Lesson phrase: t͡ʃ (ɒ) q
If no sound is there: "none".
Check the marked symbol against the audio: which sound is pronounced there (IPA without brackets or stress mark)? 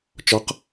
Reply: ɒ